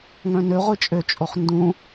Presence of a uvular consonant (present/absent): present